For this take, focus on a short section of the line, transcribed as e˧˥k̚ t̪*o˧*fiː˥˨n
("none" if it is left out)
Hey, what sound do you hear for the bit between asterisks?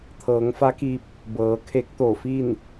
o˧˩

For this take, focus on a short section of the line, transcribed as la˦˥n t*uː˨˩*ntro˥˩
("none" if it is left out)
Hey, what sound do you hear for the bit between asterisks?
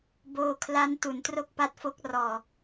u˨˩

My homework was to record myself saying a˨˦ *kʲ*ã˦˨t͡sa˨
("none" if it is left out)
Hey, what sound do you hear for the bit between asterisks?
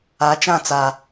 t͡ʃ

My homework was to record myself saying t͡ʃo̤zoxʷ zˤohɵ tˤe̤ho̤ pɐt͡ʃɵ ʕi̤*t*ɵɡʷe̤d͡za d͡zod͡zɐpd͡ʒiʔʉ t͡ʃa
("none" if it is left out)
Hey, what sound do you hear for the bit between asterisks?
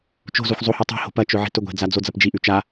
t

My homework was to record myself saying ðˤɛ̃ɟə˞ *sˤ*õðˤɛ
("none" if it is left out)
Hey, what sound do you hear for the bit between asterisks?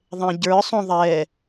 sˤ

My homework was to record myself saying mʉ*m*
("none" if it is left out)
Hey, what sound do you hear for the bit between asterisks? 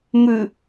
none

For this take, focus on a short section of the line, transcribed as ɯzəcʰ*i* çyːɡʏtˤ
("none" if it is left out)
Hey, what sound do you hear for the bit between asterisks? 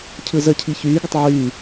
i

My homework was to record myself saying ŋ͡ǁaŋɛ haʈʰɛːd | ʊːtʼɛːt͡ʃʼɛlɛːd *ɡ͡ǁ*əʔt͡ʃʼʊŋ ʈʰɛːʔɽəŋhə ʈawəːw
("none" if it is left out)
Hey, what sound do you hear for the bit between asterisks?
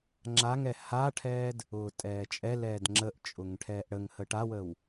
ŋ͡ǁ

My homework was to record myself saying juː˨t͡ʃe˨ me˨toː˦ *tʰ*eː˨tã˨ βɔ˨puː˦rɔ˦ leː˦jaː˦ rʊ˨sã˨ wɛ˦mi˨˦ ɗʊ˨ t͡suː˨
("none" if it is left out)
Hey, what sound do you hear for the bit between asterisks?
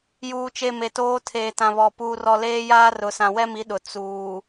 tʰ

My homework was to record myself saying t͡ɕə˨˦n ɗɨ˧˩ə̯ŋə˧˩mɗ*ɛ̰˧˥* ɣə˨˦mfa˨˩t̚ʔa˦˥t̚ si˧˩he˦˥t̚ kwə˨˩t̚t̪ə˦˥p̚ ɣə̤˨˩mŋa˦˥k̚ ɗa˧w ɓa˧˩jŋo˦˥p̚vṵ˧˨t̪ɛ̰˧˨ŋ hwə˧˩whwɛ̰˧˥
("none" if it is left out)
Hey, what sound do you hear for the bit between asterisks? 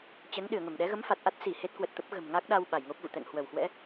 ɛ˨˦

